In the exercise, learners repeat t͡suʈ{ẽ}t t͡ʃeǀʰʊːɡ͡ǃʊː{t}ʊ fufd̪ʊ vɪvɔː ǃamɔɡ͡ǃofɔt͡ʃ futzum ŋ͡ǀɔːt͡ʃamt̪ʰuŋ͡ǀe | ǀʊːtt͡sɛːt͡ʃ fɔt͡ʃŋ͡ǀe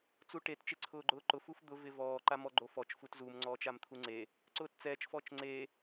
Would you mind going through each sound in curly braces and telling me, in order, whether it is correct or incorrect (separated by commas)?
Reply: incorrect, incorrect